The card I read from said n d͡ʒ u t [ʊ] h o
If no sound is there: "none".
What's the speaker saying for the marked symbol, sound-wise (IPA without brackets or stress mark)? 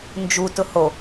ʊ